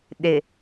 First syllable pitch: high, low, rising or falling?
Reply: low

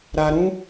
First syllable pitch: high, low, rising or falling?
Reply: low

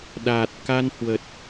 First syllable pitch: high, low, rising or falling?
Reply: low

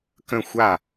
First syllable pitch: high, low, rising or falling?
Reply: falling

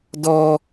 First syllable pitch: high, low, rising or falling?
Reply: high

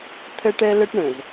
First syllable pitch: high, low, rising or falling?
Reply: high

